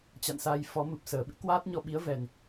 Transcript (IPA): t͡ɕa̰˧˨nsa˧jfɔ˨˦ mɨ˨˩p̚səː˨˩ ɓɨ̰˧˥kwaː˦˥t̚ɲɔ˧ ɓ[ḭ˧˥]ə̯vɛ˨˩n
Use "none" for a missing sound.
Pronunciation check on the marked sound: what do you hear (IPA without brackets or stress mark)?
i˨˦